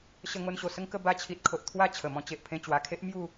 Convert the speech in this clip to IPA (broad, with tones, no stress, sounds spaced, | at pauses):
ɕ ə˧ ŋ o˧ n ɕ o˨˩ s ə˦ ŋ k ə˧ b a˧ t͡ɕʰ i˨ t̚ kʰ o˨ ʔ t̪ʰ w a˥˧ t͡ɕʰ ə˨˩ m ɔ̃˧ t͡ɕ e˨ ʔ pʰ ẽ˧ t͡ɕ w a˨˩ kʰ e˦ ʔ m j u˥˧